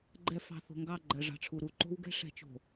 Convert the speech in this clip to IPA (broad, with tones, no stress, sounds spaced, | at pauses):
ɡ͡ǃ ɛ˨ f ɑ̤˨ θ o̤˨ ŋ ɡ ɑ˦˨ ɡ͡ǃ ɜ˨ ʐ ɑ̤˨ ʈ͡ʂʰ u˨ ɾ u˨ ǃ o̤˦ w ɡ ɛ̤˦ ʂ ɛ̤˨˦ t͡ʃ o̤˨